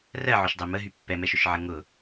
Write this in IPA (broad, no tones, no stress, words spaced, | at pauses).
rɜʕʊʃdˤe məɦy pːɛmɛʃʊʃʕə ŋʊ